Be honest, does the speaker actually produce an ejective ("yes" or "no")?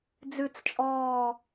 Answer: yes